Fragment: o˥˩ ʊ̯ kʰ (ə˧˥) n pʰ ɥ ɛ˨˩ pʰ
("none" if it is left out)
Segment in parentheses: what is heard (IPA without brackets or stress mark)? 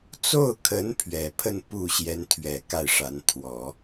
ə˧˥